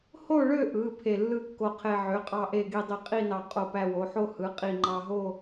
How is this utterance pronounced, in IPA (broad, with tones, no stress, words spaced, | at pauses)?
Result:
ho˥˧ɭø˥˧ʔɯ˩˧˩ pʰe˧˩lːɯ˥˧kːo˧qʰe˧ ʕø˩˧˩qʼɑ˧ʔe˧˩ɡi˧˩ dˤi˧qʼi˥˧nɑ˧ qʼo˧˩pæ˧wo˩˧˩ħo˥˧ hɯ˩˧˩qʼi˧˩ŋ͡ǃɑ˧ɦo˥˧